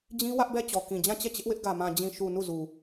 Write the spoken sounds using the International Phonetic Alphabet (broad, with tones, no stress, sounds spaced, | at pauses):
d͡ʑ ĩ˦ w ä˦ ʔ b ɛ˦˨ t͡ɕ ɔ˨ k ĩ˨ d͡ʑ ã˦˨ t͡ɕ ɛ˦˨ t͡ɕ ɪ˦ ʔ w ɪ˦ ʔ ɡ ä˨ m ã˨ d͡ʑ ĩ˨ ʃ u˨ n u˦˨ z u˨